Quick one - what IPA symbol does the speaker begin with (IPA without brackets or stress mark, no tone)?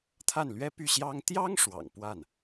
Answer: t̪ʰ